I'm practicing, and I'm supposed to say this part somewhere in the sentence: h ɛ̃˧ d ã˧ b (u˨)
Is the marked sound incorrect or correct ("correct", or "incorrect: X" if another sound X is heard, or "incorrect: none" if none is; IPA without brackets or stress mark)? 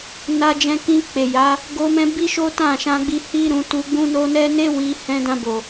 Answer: incorrect: o˨